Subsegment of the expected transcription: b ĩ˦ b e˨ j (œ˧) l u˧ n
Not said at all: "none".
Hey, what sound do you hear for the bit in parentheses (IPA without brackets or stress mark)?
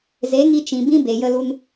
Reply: ə˧